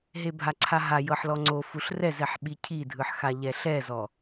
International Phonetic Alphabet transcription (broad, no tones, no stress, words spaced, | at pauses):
ɦebʱaǀʰaɦa jɤħlɔŋ͡ǀo fuɬrɛzɛħ ɓicʰidʱɯħxa ʎɛɬɛzɔ